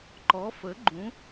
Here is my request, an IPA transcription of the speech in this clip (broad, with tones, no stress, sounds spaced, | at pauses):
ǃ ɔ˨˥ f ə˨˥ ɡ͡ǃ ũ˨˥